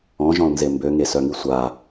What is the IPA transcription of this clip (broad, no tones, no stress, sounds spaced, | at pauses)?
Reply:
ɔ̃ ʒ ɔ̃ l n z e m b ø ŋ e s œ ŋ i sʷ a